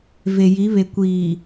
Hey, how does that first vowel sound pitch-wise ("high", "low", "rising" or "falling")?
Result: low